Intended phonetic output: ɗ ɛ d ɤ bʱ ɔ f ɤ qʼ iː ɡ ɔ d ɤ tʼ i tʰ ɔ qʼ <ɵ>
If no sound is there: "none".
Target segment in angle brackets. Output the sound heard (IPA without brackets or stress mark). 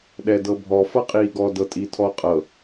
ɤ